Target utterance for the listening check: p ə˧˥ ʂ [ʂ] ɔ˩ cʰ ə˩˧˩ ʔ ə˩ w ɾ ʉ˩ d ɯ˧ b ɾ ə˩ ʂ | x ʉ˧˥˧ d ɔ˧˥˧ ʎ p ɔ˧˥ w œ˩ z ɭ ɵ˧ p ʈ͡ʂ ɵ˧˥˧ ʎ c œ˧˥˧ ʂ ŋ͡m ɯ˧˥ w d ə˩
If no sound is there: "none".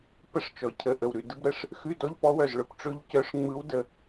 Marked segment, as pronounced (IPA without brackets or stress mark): t͡ʃ